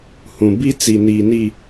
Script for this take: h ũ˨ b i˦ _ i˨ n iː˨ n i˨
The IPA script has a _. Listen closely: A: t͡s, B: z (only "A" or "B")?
A